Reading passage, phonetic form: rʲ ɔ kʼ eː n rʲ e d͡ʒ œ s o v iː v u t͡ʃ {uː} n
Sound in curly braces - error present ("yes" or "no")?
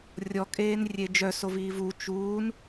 no